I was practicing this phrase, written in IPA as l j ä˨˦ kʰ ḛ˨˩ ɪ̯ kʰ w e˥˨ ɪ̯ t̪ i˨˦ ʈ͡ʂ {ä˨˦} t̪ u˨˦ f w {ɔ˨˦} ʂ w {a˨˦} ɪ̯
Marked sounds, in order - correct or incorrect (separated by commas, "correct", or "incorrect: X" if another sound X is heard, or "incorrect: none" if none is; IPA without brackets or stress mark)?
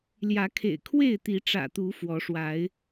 incorrect: ä̰˨˩, correct, correct